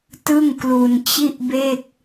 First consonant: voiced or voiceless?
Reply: voiceless